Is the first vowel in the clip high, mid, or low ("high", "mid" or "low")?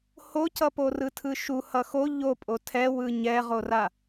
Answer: mid